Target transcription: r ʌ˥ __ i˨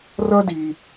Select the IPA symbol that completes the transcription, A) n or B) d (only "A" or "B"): B